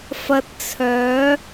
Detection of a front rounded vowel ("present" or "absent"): present